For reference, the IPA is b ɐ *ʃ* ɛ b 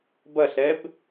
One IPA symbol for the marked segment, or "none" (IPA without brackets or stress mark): ɬ